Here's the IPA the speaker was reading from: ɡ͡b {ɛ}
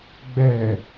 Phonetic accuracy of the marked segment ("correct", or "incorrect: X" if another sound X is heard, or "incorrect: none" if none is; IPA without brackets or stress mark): correct